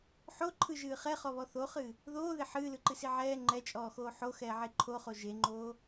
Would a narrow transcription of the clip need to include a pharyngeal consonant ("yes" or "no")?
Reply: yes